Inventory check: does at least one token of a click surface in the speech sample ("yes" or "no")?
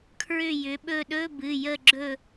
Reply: yes